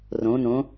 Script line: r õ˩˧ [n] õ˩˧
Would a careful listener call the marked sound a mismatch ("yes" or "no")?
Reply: no